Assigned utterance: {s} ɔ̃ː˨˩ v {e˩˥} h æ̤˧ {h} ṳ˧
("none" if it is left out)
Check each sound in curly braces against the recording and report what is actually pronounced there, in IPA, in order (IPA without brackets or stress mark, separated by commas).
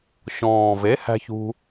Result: ɕ, e˩˥, ç